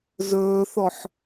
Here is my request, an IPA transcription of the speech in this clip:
z ɵː θ ɔ ħ

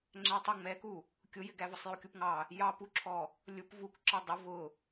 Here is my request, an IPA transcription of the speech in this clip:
ŋ͡ǁ æ tˤ ʊ ŋ͡m ɛ k u | kʲ ʊ j ɪ ɡ æ v ʊ sˤ j u kʲ u p ŋ ɑ | j ɑ p u ǁʰ ɔ | lʲ ʊ p v u k ǁ ʌ dˤ ʊ v ʊ

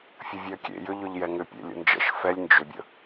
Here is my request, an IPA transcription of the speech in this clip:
fʲ ə vʲ e ɐ̯ kʲ ḛ j ʏ ʎ ʏ ʎ j ɛ ŋ ʏ pʲ ḛ lʲ ə̰ n d͡ʒ ə̰ ʃ f ɛ lʲ n d͡ʒ ʏ bʲ ə̰

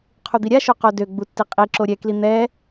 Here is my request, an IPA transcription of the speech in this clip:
qʰ u d̪ i ɾʲ a ʃ o q o d ø ɡ͡b u tː i qʼ i ǁ o ɾʲ ɛ k l i n̪ ɛ

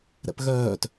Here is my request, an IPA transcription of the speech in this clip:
ɾ ɛ̰ p ɣ œː t

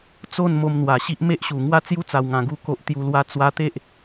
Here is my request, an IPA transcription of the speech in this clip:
t͡s o˥˧ n m o˧ m n̪ w a˨˩ ɕ i˦ ʔ m e˦ ʔ ɕ u˨˩ ŋ w a˥˧ t͡s j u˦ t͡s a˨˩ w ŋ ã˨˩ ɡ u˧ k o˨ ʔ t̪ j u˨˩ l w a˧ t͡s w a˧ t̪ e˦ ʔ

